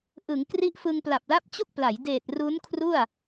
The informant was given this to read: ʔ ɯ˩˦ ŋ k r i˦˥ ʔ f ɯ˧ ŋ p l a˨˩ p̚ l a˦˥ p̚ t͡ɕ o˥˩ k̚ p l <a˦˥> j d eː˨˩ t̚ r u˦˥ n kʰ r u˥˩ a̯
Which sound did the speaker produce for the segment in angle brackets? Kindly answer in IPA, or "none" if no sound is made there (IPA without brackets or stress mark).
a˩˦